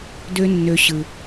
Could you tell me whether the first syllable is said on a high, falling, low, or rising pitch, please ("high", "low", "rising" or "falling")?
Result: high